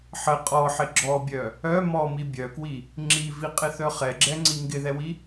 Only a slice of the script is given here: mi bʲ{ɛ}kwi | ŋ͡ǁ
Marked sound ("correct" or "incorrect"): incorrect